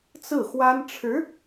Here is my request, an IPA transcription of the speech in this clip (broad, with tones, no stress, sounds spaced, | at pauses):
t͡s ɹ̩˥˩ x w a˥ n ʈ͡ʂʰ ɻ̩˧˥